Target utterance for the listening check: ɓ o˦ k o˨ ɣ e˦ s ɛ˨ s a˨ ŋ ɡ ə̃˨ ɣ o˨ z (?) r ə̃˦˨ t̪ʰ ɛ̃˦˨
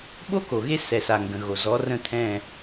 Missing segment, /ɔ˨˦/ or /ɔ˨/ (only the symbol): ɔ˨˦